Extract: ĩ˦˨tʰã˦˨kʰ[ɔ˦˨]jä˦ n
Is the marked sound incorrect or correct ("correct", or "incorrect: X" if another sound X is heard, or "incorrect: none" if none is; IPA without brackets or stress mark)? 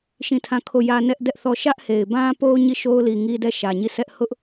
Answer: incorrect: o˦˨